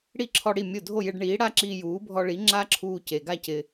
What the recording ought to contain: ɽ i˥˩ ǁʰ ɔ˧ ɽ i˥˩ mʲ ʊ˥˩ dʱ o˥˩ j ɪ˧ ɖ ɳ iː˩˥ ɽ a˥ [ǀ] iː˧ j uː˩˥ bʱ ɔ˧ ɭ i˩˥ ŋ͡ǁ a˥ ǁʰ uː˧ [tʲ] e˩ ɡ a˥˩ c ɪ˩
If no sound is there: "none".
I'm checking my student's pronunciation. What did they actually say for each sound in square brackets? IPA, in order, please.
ǁ, c

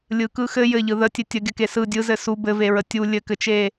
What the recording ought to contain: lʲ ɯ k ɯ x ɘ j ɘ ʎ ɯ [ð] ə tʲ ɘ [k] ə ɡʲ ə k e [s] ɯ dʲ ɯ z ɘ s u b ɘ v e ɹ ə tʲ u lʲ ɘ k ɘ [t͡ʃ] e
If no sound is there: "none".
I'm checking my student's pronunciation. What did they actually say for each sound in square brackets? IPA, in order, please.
ð, tʲ, s, t͡ʃ

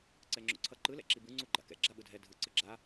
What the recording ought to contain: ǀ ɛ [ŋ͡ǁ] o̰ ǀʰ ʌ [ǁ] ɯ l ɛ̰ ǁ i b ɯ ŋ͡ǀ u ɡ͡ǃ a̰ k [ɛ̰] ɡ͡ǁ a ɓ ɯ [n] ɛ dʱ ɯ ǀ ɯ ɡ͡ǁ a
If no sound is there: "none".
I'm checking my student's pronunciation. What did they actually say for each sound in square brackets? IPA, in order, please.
ŋ͡ǁ, ǃ, ɛ̰, dʱ

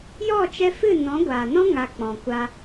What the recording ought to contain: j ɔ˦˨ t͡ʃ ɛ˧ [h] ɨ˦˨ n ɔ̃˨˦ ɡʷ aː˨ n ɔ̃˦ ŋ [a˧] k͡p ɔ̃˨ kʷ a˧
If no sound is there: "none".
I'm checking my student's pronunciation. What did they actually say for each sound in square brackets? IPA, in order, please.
f, a˧

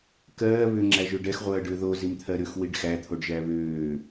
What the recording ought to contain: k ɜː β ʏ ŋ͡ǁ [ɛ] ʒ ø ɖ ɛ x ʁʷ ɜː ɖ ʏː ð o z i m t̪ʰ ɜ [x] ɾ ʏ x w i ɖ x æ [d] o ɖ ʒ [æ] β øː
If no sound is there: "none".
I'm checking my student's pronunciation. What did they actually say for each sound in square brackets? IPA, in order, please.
æ, none, t̪ʰ, æ

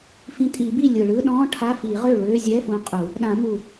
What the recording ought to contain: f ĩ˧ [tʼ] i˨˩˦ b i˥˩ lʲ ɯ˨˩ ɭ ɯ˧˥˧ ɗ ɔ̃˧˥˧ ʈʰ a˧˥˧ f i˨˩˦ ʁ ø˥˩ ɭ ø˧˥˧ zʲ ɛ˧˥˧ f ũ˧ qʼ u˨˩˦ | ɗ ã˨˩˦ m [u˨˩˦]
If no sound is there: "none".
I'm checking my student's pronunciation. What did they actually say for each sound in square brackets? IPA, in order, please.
tʼ, u˨˩

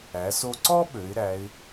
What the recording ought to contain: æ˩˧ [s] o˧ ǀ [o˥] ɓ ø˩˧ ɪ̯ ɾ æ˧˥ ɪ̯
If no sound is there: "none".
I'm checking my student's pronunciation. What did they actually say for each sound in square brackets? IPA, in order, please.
s, ɔ˥

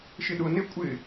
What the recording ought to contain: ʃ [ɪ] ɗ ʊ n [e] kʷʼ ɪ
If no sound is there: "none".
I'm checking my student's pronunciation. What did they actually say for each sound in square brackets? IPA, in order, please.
ɪ, e

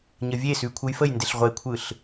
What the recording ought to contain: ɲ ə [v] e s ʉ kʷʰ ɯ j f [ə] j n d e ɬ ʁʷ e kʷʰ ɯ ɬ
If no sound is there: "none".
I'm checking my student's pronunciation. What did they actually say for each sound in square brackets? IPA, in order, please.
vʲ, ə

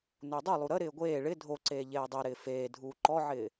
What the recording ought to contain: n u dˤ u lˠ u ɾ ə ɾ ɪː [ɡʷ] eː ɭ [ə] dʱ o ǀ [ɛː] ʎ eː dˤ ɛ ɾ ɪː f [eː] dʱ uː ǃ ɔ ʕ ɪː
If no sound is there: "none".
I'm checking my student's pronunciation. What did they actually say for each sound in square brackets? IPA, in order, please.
ɡʷ, ɪ, eː, eː

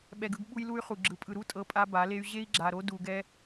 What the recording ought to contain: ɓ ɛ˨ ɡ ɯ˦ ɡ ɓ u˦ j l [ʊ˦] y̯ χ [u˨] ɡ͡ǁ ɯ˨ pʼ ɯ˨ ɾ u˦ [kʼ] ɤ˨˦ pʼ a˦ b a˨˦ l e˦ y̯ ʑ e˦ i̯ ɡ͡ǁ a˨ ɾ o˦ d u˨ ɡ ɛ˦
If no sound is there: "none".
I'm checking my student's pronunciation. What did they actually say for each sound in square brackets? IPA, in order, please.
u˦, u˨, tʼ

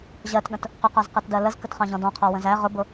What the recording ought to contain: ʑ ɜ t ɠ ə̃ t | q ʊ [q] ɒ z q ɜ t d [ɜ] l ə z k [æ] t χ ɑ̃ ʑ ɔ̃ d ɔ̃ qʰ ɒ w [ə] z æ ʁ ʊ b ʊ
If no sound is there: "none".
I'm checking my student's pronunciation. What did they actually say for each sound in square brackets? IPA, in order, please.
q, ɜ, ə, ə̃

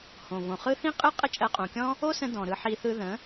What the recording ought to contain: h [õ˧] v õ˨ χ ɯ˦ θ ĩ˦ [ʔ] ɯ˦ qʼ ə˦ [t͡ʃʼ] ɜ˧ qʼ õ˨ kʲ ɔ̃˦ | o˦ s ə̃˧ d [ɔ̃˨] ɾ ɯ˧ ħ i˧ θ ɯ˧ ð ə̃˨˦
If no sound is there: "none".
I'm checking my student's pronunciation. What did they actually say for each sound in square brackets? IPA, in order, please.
õ˨, qʼ, t͡ʃʼ, ɔ̃˨

